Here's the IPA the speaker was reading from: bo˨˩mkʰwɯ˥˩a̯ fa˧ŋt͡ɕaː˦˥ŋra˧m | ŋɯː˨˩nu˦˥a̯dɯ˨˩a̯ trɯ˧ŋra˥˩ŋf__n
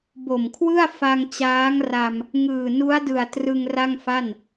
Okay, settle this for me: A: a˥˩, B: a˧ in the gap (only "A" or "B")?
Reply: A